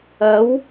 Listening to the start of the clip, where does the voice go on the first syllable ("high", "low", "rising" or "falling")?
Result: rising